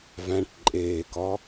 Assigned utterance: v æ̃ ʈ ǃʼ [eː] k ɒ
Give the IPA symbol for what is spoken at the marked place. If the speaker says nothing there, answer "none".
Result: eː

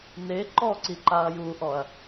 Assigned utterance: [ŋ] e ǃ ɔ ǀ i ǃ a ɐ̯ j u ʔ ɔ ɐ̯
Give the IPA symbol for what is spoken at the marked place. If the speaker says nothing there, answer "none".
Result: n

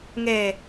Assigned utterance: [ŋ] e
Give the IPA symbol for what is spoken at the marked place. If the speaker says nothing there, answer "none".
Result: ŋ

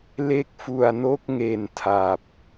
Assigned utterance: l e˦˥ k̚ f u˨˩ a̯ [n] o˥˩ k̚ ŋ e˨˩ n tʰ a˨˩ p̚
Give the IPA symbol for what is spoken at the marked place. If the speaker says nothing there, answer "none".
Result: n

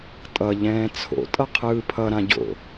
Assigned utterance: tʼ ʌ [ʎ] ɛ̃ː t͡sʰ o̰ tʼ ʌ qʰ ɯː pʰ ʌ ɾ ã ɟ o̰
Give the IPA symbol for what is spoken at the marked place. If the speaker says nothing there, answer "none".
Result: ʎ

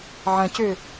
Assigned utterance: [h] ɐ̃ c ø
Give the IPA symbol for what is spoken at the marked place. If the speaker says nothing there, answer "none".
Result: ʕ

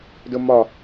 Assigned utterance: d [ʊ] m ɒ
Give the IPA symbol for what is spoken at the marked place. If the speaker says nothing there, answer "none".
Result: ʊ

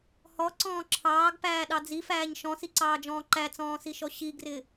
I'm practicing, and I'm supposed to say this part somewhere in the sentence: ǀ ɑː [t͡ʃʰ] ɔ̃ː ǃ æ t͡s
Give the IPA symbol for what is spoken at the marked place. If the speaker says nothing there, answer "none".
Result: d͡ʒ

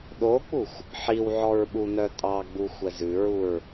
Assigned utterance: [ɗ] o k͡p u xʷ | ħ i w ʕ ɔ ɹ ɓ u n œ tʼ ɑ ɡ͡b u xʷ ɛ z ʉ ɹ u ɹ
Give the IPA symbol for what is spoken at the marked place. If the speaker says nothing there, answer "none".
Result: ɗ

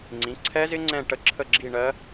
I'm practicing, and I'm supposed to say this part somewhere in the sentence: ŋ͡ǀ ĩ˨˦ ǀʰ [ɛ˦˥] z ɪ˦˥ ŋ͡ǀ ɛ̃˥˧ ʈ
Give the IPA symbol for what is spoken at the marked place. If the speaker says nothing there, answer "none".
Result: ɛ˦˥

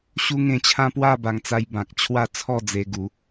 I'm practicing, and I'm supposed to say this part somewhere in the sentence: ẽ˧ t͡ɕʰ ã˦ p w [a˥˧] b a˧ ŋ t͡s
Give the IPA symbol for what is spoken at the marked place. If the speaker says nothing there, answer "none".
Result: a˥˧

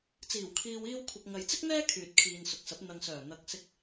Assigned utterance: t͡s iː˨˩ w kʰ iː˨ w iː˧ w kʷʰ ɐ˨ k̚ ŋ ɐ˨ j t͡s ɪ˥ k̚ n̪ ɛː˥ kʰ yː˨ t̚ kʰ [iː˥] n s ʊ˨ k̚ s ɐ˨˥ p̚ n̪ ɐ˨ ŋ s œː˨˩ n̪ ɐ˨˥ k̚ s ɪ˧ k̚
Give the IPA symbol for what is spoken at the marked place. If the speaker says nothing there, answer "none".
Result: iː˨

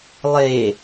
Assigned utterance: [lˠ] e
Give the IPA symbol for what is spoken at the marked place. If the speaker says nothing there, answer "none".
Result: lˠ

